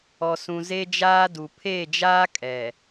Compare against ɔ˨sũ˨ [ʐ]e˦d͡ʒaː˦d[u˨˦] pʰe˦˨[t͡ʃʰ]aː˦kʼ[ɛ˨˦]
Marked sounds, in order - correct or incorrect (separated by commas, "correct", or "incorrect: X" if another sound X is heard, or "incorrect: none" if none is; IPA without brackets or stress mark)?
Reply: incorrect: z, incorrect: u˨, incorrect: d͡ʒ, incorrect: ɛ˨